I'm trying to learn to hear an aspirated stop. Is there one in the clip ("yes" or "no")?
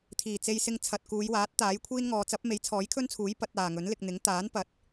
yes